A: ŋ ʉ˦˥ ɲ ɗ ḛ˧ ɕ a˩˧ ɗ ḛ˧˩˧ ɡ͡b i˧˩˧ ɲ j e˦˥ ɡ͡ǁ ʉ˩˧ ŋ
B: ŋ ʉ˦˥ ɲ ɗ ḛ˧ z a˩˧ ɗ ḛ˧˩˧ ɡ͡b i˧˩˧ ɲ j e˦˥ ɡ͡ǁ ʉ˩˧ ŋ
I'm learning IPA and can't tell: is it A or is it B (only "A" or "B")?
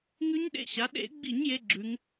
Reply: A